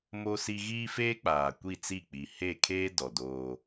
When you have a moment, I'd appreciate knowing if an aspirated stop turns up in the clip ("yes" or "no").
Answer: yes